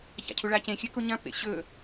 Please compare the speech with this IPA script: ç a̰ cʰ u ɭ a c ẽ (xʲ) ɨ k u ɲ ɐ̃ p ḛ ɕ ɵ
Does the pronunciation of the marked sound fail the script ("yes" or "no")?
no